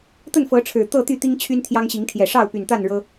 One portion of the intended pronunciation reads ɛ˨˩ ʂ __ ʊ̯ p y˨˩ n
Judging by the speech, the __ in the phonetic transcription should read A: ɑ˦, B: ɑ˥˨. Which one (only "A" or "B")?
B